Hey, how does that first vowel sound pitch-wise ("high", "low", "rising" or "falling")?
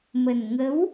low